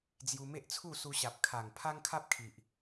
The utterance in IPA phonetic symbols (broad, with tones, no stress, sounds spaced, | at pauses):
d͡z j u˧ m e˦ ʔ t͡sʰ u˥˧ s u˧ ɕ a˨ p̚ kʰ a˨˩ ŋ pʰ a˦ ŋ kʰ a˦ p̚ kʰ i˨ ʔ